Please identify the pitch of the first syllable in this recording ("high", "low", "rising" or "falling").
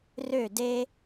falling